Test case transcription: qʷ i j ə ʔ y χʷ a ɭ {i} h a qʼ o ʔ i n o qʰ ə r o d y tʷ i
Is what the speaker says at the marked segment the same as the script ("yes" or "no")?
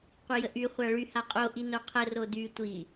no